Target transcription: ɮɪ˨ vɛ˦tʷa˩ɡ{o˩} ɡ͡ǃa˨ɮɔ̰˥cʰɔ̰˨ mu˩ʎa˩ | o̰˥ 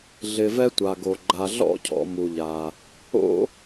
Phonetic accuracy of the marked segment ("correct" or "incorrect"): correct